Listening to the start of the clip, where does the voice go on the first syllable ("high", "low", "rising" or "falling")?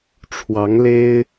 rising